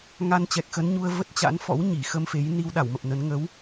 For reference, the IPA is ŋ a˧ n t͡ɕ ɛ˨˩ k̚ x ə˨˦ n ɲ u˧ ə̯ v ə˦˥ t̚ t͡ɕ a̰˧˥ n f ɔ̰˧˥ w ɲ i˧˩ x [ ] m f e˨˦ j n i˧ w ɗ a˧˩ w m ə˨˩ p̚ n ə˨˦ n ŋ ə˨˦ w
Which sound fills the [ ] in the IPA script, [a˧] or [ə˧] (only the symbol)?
ə˧